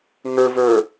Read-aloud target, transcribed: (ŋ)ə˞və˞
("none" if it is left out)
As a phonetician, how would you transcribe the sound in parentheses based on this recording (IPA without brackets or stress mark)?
ŋ